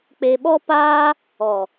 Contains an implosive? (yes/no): yes